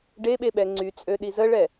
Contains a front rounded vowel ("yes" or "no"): yes